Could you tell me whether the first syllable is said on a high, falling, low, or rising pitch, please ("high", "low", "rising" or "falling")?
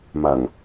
low